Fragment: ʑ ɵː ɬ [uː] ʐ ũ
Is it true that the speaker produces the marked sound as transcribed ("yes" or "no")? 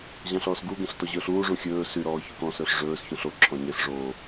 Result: yes